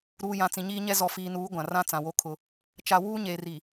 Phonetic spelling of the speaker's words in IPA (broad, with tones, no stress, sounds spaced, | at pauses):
ɾ uː˨ j ã˨ t͡s ĩ˨ ɲ iː˦ ɲ ɛ˦ z ɔ˨ f iː˨ n uː˨˦ ɡʷ ã˨ r ã˦ t͡s ã˨ w o˦ kʰ ʊ˦ | t͡ʃ a˨ w uː˦ ɲ eː˨ r i˨